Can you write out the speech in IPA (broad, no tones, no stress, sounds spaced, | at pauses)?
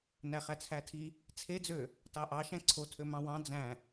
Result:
n æ χ æ t͡sʰ æ tʰ i | t͡sʰ e d͡z ø | t ɑ ʔ ɑ ʃ æ̃ ǀʰ o tʰ ø m ɑ̃ w ɑ̃ d͡z æ̃